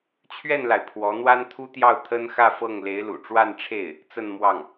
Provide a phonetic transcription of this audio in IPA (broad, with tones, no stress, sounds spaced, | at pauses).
t͡ɕʰ ɥ ɛ˥˩ n l a˩ ɪ̯ pʰ w ɔ˧˥ n̪ w a˥ n t̪ʰ u˥ t̪ j ɑ˥˩ ʊ̯ t̪ʰ ə˥ n x ä˥˧ f ɤ˥˩ ŋ l e˧˥ ɪ̯ l ṵ˨˩ ʈ͡ʂ w a˥˧ n ʈ͡ʂʰ e˥˩ ɪ̯ | t͡s ə˥˧ n m w ɑ˥˩ ŋ